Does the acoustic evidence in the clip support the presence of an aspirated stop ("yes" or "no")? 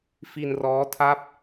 yes